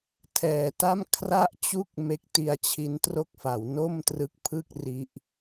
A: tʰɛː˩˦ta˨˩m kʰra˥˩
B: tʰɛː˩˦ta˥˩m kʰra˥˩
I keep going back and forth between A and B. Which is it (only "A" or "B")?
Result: B